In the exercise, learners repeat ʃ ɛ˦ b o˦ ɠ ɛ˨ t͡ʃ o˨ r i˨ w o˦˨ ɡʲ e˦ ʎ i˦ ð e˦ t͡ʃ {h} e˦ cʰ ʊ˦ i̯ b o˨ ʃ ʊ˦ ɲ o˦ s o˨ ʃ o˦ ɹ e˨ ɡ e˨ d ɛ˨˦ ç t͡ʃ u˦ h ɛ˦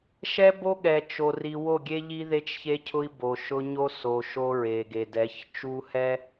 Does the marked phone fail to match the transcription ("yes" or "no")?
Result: yes